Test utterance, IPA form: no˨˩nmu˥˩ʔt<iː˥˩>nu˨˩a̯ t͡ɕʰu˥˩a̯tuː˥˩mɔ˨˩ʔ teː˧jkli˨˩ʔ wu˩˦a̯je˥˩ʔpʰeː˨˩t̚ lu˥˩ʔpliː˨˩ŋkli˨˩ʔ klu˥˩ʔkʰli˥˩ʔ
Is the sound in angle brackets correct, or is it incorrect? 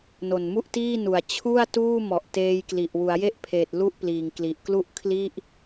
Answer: correct